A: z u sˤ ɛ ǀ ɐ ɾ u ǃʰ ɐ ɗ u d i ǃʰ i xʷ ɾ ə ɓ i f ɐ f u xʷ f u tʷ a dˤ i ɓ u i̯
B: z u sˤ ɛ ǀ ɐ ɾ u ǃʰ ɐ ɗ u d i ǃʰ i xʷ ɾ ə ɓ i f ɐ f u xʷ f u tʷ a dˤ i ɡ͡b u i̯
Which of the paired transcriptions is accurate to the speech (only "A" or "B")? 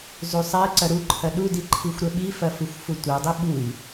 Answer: A